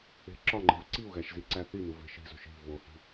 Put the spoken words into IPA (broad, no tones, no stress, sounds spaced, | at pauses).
e̤ ǁ ɒ ŋ͡ǃ e̤ v ǀ i u̯ ɣ æ ʃ z i ǀ æ θ i n u v e̤ ʃ i̤ z o̤ ʃ i̤ v o h i̤